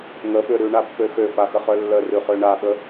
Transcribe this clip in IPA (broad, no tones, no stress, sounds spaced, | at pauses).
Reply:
ŋ ə ɓ ø ɾ ʉ ɳ a pː ø x ø f a x ə χ œ lː ə r ʉ χ ø ɳ a ɓ ə